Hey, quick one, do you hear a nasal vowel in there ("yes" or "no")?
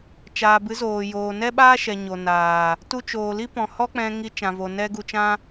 yes